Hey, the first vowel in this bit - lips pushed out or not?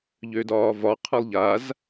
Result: yes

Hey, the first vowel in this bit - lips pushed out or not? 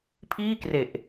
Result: no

